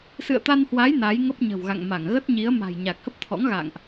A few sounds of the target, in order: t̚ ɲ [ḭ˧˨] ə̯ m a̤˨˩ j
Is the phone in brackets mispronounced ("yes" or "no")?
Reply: yes